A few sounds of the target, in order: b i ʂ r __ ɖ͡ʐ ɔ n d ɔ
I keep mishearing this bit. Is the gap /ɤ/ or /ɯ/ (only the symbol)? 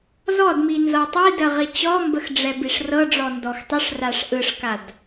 ɤ